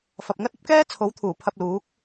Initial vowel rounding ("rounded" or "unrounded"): unrounded